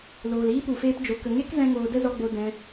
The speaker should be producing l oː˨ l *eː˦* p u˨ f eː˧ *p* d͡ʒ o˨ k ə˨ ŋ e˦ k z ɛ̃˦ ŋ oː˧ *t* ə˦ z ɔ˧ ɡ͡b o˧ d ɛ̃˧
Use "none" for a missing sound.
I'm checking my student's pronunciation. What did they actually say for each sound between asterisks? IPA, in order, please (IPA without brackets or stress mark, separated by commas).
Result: iː˦, p, d